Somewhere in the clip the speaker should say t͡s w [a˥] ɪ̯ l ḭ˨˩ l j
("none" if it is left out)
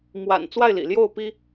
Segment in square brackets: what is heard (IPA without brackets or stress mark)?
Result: a˥˩